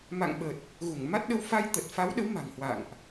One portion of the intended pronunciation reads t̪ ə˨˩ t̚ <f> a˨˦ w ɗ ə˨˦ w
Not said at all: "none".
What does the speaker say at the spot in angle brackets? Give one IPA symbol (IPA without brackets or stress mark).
f